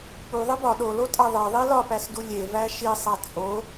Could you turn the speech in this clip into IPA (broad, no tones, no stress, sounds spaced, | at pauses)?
k͡p u ðˤ i b ɒ ɗ o l o tʼ æ ðˤ e ðˤ i l ɒ p æ s d u lʲ e v æ ʃ i sˤ æ t͡sʼ o